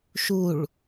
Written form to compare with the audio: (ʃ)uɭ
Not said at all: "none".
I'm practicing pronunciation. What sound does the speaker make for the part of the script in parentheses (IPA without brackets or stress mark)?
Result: ʃ